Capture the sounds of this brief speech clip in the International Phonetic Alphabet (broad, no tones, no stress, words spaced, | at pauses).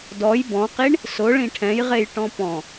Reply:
dɔj bɔ̃qiɳ | sʊ ɭĩʈʰɛ̃jʁej ʈɔ̃pɔ̃